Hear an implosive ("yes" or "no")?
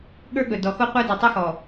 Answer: yes